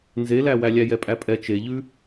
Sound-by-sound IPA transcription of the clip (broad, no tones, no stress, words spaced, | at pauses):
nzelæwæ lʲæjɛpʼæpʼɛ t͡ʃeʎʉ